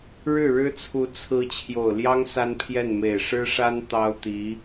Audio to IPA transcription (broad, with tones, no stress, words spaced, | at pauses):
ɻɻ̩˥˩ɻɻ̩˥t͡sʰu˧˥ t͡sʰɹ̩˧˥ t͡ɕʰjo˨˩ʊ̯ljɑ˥ŋ sa˥npʰjɛ˥˩nme˨˩ɪ̯ ʂɻ̩˥ʂa˥n t̪ɑ˥ʊ̯t̪i˧˥